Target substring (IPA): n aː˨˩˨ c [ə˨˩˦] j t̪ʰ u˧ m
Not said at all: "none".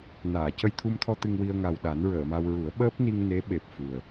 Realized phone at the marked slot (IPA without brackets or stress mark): ə˧